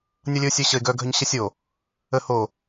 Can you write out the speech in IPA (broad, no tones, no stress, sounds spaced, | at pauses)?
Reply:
nʲ ʌ lʲ ɘ ʊ̯ sʲ œ ɕ ə ɪ̯ ɡ œ ɡʱ œ ɲ ɕ ə sʲ o | ə h o